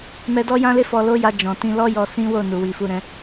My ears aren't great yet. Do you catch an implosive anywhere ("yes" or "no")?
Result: no